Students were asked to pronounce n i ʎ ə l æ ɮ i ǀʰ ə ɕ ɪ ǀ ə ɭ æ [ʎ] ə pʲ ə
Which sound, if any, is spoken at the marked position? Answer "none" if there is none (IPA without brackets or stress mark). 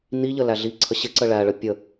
ɭ